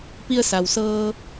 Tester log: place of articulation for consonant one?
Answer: labial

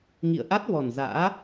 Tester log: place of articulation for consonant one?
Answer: velar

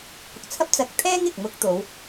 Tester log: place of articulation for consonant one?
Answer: velar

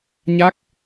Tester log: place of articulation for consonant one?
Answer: palatal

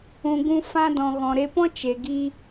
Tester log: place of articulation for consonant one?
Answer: velar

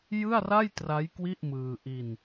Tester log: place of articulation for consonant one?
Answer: palatal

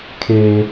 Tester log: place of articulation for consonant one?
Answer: velar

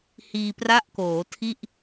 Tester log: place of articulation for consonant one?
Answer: glottal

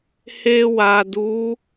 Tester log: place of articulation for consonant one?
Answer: glottal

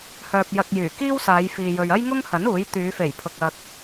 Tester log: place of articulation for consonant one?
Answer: glottal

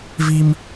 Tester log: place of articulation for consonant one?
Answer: labial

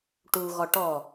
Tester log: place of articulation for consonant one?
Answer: retroflex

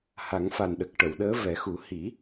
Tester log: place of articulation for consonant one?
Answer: glottal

